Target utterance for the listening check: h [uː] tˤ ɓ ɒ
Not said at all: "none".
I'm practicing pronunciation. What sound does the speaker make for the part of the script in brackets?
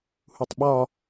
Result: u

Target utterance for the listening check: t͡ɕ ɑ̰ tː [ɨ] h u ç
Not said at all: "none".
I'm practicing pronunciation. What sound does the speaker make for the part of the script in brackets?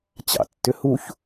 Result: ʏ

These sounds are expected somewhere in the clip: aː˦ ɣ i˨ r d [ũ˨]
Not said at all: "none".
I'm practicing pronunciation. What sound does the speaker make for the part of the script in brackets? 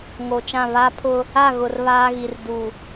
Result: u˨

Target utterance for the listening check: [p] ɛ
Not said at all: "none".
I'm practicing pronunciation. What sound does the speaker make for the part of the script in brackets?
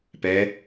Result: p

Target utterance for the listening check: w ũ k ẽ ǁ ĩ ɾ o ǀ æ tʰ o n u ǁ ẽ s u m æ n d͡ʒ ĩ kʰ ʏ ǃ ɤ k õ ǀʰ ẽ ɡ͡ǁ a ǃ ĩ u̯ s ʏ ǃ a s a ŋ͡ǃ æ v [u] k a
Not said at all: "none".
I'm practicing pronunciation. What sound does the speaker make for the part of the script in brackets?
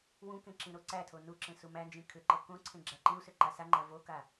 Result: o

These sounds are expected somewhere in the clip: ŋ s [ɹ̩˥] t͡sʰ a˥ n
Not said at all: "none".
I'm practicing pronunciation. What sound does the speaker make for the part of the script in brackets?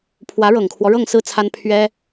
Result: ɹ̩˥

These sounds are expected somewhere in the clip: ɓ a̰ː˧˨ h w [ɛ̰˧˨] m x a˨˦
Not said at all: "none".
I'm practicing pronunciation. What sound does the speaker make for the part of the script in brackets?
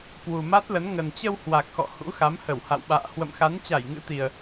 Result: ə̰˧˨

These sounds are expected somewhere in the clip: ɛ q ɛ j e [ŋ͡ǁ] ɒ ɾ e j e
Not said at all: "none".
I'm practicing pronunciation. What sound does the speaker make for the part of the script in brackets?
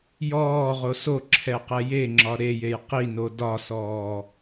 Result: ŋ͡ǁ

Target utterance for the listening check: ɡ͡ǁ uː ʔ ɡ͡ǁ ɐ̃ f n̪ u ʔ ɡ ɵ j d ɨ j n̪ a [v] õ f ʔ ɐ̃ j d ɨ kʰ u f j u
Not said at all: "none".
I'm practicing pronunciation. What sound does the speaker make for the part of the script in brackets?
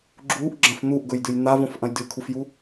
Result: v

